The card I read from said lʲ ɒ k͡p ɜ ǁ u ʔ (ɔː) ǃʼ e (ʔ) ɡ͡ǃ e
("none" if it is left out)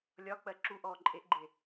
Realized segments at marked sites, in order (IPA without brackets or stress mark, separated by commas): ɔː, ʔ